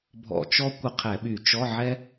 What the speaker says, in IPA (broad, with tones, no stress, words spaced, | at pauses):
bʱɔ̰˧˩˧t͡ʃɔ˥ kʷə˦˨qʰɛ˧˩˧ɓy˧˩˧ t͡ʃɔ˧˥˧ʕɛ˥